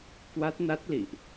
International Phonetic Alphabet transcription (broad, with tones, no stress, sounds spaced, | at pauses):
k w a˦˥ t̚ n a˦˥ t̚ l ḭ˧˨ ʔ